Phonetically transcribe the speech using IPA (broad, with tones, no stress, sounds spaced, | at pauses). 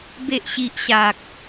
b e˨ ʔ ɕ i˨ ʔ ɕ a˨ k̚